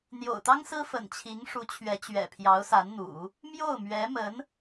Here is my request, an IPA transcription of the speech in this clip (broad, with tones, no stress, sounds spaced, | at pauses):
n̪ j o̰˨˩ ʊ̯ t̪ ɑ˥ ŋ s ɹ̩˥ f ə̰˨˩ n t͡ɕʰ i˧˥ ŋ ʂ u˧˥ t͡ɕʰ ɥ ɛ˧˥ t͡ɕ ɥ ɛ̰˨˩ pʰ j ɑ˧˥ ʊ̯ s a˧˥ n n̪ ṵ˨˩˦ | m j o˥˩ ʊ̯ m ɥ ɛ˧˥ m ə˧˥ n